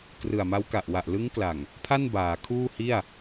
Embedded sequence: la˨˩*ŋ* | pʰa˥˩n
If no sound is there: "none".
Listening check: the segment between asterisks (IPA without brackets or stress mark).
ŋ